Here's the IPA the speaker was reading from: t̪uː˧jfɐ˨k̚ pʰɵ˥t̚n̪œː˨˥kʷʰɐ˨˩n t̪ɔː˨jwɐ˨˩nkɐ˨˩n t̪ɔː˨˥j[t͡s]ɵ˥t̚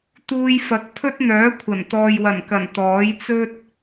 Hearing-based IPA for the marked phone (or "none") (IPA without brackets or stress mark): t͡s